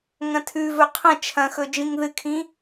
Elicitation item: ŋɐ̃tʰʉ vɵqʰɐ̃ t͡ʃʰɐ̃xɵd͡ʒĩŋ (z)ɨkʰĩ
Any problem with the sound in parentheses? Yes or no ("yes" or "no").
yes